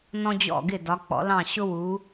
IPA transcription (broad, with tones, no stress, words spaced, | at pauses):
nɔ̃˧d͡ʑɔ̰˧˩ ɡɪ˧˩dɒ˩˧k͡pɔ̰˩˧lɑ̃˧˩ ɕʊ˧wu˩˧